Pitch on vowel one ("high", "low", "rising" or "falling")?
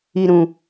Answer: low